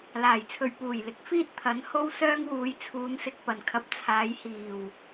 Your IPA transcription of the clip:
l aː˨˩ j t͡sʰ ɵ˨ ɥ p uː˨˩ j l ɪ˨˥ k̚ f iː˥ t̚ t̪ʰ ɐ˨˥ n h o˥ w s œː˥ ŋ w uː˨˧ j t͡sʰ uː˨˧ n s ɪ˨ k̚ p ɐ˨˩ n kʰ ɐ˨ p̚ t͡sʰ aː˨˧ j h iː˨˩ w

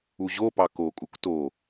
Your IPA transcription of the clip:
u ʑ o p ɑ k o kʼ u k t o

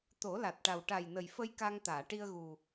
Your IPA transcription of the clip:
t̪ o˨˩˦ l a˨˩ t̚ ʈ a˨˩ w ʈ a˨˩ j n ə˨˩ j f ə˧ j k a˧ ŋ t̪ aː˨˩˨ ʈ i˧ ə̯ ɣ u˨˩

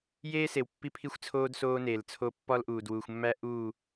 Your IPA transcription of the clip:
j eː˦ s e˨ w pː i˦ pʰ i˦ xʷ t͡sʰ oː˦ d s oː˦ n eː˨ l t͡sʰ o˦ pː ɒ˦ l ʔ uː˨ d w uː˨ xʷ mː æ˦ ʔ uː˦˨

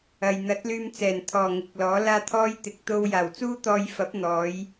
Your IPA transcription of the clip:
ɐ˨ j n̪ ɐ˨˥ t̚ l yː˧ m t͡s ɛː˨˩ n t̪ʰ ɔː˨˩ ŋ ɪ˨˥ k̚ l ɔː˨˥ l aː˥ t̪ʰ ɔː˥ j t̪ ɪ˨ k̚ t̪ o˧ w j aː˨˩ w t͡s uː˥ t̪ ɔː˧ j f ɐ˨˥ p̚ n̪ ɔː˨˧ j

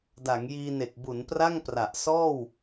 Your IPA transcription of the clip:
d a˩˦ ŋ j iː˧ n e˨˩ k̚ b u˩˦ n p r a˥˩ ŋ p r a˨˩ ʔ s ɔː˥˩ w

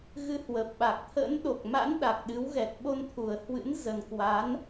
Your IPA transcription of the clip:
ɣ ɨ˧ h w ə˨˩ p̚ ɓ a˨˩ k̚ t̪ʰ ə̰˧˥ n ɗ o˨˩ k̚ m a̰˧˥ n ɗ a˨˩ k̚ ɗ ɨ˨˦ w ɣ ɛ˨˩ t̚ ɓ o˧ n t̪ʰ u˨˩ ə̯ h w ɨ̰˧˥ n z ə˨˩ n k w a˨˦ n

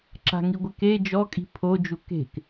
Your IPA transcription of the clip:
ǁ a̤ ŋ i ɡʷ ɪ k e d͡ʒ ɔ kʼ i̤ pʰ o d͡ʒ u k e̤ k

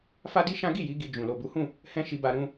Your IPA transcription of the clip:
f a˦ d i˦ ʃ ã˦ ɡ i˦˨ j i˨˦ ɡ i˧ d͡ʒ ũ˨ l o˨ b u˨˦ h ũ˦˨ | h ɛ̃˦ ʃ i˧ b a˧ ɾ ũ˧

